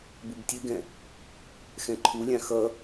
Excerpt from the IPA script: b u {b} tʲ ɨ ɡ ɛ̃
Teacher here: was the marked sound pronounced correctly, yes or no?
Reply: yes